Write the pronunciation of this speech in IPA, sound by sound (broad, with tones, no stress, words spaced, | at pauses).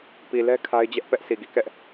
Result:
pi˨lɛ˦ kʰa˦ɪ̯d͡ʑɛ˦ʔpɛ˦ʔ sʰi˨ɡi˨kɛ˦ʔ